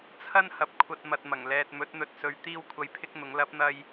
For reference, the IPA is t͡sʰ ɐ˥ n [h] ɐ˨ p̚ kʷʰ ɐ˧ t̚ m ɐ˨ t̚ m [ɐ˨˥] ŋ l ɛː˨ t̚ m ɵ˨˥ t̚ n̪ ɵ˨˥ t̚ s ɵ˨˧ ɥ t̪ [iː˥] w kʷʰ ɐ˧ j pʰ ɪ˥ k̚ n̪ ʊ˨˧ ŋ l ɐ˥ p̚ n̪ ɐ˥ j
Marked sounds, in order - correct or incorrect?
correct, incorrect: ɐ˨˩, correct

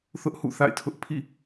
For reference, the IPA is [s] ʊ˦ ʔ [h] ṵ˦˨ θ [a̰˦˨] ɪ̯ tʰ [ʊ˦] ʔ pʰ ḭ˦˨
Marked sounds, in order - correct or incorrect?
incorrect: θ, correct, correct, correct

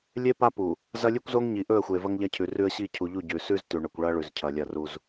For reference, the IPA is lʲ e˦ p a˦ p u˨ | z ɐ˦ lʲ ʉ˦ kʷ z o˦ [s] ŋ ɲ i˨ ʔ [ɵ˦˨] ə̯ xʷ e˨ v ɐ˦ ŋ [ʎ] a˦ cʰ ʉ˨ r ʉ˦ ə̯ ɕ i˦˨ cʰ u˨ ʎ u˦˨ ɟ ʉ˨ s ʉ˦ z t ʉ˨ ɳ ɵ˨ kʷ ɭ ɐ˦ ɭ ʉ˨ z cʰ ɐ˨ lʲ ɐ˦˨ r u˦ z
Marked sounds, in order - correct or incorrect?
incorrect: none, correct, correct

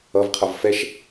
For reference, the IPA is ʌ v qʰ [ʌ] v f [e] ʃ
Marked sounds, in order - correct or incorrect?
correct, incorrect: ɛ

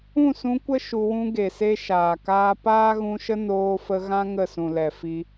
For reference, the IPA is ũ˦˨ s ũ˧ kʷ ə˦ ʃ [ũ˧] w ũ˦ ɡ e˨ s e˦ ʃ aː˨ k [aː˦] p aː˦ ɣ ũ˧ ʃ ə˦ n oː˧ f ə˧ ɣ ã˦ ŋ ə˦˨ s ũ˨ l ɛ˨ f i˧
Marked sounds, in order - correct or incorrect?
incorrect: u˧, correct

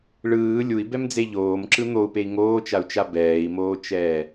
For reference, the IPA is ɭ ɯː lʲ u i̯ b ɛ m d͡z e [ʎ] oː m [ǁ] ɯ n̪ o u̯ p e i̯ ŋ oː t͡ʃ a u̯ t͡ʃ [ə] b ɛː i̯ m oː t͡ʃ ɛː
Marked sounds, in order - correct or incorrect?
correct, correct, incorrect: a

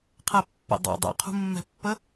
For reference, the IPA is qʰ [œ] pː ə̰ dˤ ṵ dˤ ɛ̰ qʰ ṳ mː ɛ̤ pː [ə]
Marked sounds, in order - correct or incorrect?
incorrect: ɛ, correct

